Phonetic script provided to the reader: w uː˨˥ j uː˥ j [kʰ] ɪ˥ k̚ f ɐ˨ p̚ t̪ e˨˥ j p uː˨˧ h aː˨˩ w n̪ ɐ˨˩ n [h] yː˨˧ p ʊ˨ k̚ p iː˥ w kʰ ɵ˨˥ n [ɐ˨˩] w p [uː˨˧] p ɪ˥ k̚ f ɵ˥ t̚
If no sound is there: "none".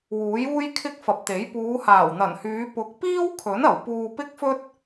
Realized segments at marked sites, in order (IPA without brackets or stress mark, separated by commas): kʰ, h, ɐ˨˩, uː˧